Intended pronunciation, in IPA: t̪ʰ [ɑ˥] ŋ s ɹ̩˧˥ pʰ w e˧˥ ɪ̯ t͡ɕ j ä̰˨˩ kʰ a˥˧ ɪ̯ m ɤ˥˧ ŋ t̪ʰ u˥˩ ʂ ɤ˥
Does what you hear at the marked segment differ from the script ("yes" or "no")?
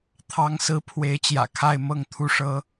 yes